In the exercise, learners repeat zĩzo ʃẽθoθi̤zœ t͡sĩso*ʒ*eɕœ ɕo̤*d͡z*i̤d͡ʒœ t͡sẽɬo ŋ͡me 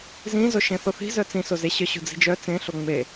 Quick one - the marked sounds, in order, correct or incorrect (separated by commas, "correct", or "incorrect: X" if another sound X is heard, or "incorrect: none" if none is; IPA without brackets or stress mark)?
incorrect: z, correct